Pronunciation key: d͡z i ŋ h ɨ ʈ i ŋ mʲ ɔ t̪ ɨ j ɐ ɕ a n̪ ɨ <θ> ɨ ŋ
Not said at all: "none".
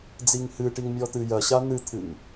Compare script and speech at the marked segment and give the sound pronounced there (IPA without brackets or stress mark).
t̪ʰ